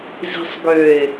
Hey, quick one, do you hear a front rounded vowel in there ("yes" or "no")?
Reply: yes